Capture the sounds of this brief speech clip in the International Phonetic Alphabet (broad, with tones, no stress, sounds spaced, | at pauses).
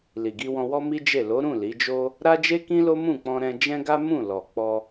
l i˨ ɡ i˧ w ɔ̃˧ w ɔ˦ m i˦ d͡ʒ e˦˨ l o˨˦ ɾ ũ˦˨ l i˨˦ d͡ʒ o˦ | ɾ a˦ d͡ʒ e˦ k ĩ˦ l o˦ m ũ˦˨ k͡p ɔ̃˧ ɾ ɛ̃˧ d͡ʒ ɛ̃˦ ɡ a˦ m ũ˦˨ l ɔ˨ k͡p ɔ˧